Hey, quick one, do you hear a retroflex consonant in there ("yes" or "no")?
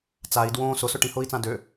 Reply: yes